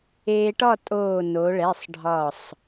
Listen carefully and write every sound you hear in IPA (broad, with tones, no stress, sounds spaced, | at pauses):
eː˧ ʈ ɒ˥˨ tʼ oː˧˩ n o˩˧ ɭ ɛ˩˧˩ sˤ ɖʱ ɒ˧˩ sˤ